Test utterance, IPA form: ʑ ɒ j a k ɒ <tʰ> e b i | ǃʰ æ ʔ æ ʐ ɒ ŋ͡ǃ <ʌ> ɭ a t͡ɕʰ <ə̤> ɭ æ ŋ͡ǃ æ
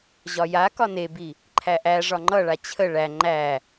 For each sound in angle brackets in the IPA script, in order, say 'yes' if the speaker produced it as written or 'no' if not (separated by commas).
no, yes, no